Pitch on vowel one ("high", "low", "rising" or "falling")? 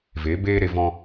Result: rising